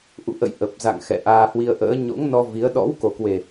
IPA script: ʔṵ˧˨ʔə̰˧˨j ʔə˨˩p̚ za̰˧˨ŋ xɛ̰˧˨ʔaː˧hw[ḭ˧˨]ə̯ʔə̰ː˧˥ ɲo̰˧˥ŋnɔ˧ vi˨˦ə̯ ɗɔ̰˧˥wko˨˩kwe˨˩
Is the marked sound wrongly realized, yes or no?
yes